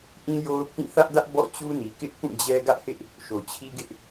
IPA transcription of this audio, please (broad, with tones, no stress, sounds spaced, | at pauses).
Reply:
ʔ ĩ˦ j o˦ ʊ̯ pʰ ĩ˦˨ θ ä˦ ʔ d ä˦ ʔ b ɔ̰˦˨ t͡ɕ u˦ n i˨ k ɪ˦ ʔ p ũ˦˨ d͡ʑ ɛ˦ ɡ ä˦ ʔ h ɪ˦ ʔ | ʃ o˨ t͡ɕʰ i˦ ɡ ɪ˦ ʔ